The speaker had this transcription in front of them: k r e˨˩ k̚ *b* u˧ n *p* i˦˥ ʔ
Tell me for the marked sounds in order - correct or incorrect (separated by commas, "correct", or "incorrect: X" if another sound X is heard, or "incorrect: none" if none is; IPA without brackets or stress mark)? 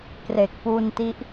incorrect: p, incorrect: t